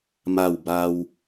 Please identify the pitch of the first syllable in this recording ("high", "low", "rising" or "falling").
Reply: falling